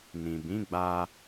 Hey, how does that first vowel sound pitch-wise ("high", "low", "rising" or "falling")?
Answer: low